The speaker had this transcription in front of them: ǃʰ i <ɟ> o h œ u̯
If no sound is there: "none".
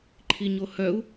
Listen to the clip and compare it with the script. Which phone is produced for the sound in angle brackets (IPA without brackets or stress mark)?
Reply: ɲ